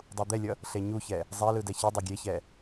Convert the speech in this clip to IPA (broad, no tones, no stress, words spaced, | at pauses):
dˤud̪ɛlʲʌ | ɬeɲuçɛ | zˤelɯ dɛçidˤe ɡʲeçɛ